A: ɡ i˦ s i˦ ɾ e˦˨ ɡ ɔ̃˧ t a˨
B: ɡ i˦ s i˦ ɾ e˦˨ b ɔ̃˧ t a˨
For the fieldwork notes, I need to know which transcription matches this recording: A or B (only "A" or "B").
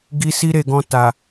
A